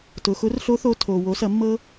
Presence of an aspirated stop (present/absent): present